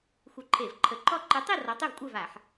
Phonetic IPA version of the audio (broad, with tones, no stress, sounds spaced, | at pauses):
xʷ ɨ˧˩˧ ǃʰ e˧˩˧ v ǃʰ ə˨˥ ǃ ɔ˥˨ ǃ ɨ˨˥ tˤ i˥˨ r ɔ˨˥ tˤ e˥˨ v kʷʼ ɜ˥˨ v a˧˩˧ ħ